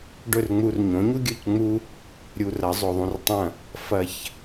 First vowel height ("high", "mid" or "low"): mid